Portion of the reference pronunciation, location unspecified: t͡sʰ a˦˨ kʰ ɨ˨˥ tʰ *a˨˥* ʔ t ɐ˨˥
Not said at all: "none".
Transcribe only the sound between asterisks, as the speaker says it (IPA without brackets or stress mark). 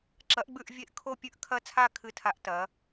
a˨˥